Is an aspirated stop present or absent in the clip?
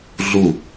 absent